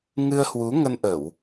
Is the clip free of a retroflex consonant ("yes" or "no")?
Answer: yes